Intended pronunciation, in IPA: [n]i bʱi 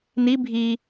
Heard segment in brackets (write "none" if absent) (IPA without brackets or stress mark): n